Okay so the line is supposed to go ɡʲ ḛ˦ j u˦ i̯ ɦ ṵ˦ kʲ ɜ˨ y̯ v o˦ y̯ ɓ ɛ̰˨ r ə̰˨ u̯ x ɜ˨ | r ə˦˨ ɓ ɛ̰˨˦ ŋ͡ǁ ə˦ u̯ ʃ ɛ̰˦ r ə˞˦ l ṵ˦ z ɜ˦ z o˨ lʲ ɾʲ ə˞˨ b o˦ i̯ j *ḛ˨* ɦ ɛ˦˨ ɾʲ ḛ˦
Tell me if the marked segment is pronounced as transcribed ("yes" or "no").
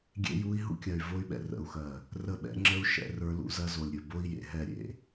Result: yes